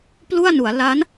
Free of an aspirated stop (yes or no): yes